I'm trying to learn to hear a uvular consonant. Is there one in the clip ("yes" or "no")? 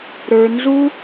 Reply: no